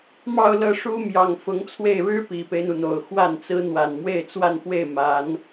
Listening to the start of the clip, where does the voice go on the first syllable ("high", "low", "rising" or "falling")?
falling